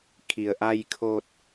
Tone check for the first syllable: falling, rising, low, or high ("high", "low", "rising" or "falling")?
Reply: low